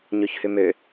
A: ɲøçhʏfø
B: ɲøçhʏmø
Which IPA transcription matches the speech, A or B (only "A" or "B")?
B